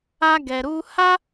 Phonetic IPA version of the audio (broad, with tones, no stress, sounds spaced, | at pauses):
a˦ ɡ ɛ˧ ɾ u˦ h a˦